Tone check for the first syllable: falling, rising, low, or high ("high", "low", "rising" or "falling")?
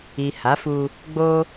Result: low